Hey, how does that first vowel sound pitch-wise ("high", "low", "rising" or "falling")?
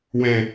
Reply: low